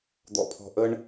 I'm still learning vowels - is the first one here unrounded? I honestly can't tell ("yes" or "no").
no